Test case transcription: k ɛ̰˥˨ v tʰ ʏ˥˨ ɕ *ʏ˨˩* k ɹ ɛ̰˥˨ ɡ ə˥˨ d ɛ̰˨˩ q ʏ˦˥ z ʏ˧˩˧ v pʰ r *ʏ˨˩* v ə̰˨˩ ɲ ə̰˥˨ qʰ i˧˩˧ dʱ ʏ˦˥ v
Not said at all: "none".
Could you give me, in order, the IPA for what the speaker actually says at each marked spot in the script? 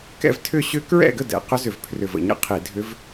ʏ˦˥, ʏ˨˩

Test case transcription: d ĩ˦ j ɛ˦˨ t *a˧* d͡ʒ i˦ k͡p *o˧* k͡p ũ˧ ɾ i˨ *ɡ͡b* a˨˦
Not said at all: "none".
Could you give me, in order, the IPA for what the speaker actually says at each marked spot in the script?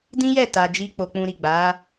a˧, o˧, ɡ͡b

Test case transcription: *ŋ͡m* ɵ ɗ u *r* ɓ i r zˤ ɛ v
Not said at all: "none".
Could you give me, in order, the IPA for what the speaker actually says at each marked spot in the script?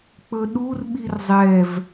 k͡p, r

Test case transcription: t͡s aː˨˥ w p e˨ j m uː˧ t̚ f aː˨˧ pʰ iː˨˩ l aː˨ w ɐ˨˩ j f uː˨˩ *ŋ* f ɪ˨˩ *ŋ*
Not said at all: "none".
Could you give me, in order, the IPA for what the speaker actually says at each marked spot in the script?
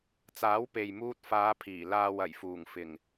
ŋ, ŋ

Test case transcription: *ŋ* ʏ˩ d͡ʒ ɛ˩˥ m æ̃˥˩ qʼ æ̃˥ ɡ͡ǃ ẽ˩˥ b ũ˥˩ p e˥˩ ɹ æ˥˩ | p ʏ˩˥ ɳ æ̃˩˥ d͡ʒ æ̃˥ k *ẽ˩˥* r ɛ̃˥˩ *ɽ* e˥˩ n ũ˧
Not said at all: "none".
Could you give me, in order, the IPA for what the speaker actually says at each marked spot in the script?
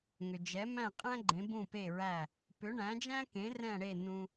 ŋ, ẽ˩˥, ɽ

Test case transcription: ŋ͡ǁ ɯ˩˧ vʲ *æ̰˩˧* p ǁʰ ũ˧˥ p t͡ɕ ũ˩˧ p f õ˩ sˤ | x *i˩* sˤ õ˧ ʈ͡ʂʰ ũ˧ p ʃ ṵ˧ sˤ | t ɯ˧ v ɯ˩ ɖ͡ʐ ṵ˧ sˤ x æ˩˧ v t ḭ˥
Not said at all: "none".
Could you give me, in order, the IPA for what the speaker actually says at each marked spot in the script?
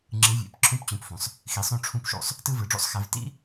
æ̰˩˧, i˩

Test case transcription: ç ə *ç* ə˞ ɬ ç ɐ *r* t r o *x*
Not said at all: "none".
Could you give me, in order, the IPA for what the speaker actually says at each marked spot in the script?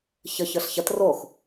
ç, none, x

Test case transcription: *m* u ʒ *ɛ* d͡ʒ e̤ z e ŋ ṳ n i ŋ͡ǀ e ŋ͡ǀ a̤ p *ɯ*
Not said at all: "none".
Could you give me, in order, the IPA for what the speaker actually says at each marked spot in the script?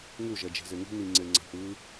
ŋ, ɛ, ɯ

